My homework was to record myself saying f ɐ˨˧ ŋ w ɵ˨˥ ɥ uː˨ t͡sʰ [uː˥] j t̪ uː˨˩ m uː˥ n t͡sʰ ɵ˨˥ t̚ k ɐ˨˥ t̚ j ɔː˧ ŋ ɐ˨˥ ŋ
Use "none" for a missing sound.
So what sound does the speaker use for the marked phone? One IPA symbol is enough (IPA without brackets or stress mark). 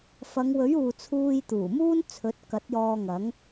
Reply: uː˧